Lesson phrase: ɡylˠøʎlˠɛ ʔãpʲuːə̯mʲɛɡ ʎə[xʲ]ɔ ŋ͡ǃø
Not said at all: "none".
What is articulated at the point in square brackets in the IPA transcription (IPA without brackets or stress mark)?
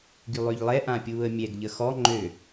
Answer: x